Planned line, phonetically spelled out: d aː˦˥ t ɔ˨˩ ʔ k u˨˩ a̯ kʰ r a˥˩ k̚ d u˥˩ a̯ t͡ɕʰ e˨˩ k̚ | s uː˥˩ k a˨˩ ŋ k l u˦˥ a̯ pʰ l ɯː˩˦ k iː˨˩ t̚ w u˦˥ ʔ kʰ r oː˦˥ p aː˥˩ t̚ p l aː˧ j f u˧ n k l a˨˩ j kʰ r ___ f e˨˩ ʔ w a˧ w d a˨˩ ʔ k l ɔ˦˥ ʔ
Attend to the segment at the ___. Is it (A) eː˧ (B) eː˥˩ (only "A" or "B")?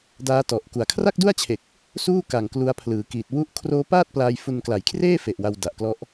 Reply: B